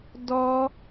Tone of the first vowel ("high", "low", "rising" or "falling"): high